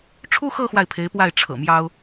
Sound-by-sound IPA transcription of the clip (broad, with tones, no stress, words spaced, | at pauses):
ʈ͡ʂʰu˥xɤ˥˧ xwa˥˩ɪ̯pʰe˧˥ɪ̯pwa˥˩ɪ̯ ʈ͡ʂʰɤ̰˨˩ mjɑ˥ʊ̯